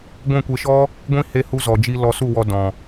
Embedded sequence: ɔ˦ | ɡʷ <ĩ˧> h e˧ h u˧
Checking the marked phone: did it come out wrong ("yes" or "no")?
yes